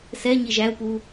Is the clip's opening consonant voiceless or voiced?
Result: voiceless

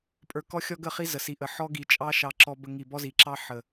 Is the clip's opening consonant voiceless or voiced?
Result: voiceless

